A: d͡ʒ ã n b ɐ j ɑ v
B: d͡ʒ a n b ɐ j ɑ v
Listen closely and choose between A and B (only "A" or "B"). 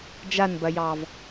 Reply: B